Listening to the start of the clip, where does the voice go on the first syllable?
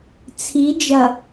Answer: rising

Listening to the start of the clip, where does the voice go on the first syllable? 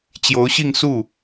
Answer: rising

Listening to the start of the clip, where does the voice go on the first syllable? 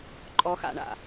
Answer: high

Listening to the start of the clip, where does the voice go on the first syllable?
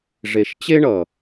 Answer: low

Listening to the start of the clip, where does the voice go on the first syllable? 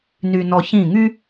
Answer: low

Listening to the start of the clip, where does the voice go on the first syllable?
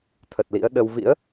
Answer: low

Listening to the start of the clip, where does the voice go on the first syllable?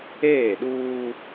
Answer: falling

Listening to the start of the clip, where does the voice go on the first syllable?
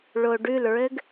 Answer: low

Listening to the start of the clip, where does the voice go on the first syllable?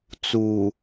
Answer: low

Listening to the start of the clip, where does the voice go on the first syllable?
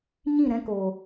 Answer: falling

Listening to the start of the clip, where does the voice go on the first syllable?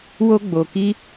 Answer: high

